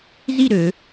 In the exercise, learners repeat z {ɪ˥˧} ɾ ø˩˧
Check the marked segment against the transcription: incorrect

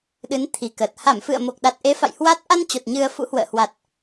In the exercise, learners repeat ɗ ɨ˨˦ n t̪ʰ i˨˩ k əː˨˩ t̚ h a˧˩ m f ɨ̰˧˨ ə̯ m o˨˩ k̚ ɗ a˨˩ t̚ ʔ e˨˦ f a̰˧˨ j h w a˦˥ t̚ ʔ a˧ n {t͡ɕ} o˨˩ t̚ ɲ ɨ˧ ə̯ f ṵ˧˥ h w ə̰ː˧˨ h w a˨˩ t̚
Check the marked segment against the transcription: correct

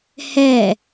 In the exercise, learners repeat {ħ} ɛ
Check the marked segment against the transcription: incorrect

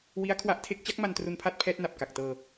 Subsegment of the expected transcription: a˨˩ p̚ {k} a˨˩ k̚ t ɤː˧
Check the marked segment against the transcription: correct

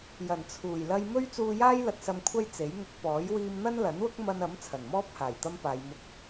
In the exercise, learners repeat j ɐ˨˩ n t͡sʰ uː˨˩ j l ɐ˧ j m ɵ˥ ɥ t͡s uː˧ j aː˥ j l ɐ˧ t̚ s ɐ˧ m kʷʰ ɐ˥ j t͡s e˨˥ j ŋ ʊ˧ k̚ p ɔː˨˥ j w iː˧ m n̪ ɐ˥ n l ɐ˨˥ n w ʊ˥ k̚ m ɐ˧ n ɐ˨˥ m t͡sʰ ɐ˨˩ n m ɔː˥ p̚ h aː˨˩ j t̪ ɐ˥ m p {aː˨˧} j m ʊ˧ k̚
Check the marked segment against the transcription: correct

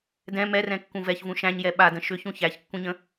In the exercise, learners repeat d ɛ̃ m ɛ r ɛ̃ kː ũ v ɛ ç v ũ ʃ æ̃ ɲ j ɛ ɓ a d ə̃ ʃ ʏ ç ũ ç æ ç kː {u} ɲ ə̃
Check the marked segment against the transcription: incorrect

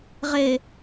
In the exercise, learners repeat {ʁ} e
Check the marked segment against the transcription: correct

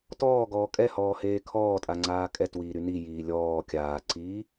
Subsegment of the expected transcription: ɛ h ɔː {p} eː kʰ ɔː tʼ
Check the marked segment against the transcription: incorrect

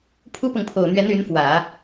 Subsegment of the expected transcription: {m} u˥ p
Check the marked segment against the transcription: incorrect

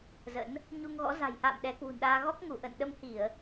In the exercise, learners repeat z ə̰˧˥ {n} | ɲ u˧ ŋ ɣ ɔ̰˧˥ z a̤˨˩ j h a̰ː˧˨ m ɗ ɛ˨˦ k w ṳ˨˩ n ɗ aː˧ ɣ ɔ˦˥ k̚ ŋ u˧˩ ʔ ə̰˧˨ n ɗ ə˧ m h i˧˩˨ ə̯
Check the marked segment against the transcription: correct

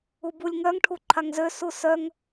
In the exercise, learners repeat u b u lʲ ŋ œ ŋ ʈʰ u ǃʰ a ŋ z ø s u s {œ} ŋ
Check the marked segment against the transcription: correct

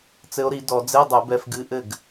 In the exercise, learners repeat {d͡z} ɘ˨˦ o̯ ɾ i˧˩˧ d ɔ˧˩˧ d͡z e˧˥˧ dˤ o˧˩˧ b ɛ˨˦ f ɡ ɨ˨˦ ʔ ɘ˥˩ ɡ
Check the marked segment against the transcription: incorrect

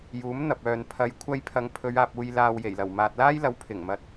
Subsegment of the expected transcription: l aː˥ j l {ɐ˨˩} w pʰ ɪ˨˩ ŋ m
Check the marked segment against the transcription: incorrect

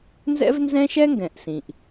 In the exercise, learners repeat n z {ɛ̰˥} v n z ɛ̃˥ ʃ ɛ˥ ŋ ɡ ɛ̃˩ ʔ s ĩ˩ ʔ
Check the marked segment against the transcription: correct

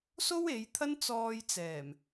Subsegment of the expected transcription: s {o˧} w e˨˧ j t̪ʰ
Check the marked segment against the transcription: incorrect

